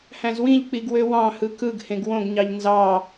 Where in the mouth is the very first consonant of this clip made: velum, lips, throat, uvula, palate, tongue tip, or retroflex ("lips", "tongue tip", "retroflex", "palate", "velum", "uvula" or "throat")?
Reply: throat